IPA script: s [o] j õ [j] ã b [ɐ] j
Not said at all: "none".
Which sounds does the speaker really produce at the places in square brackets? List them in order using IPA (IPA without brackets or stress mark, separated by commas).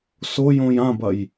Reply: o, j, ɐ